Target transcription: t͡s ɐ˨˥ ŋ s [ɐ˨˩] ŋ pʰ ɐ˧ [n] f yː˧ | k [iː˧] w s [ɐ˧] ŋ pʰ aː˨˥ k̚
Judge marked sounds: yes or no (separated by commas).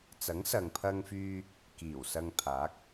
no, no, no, yes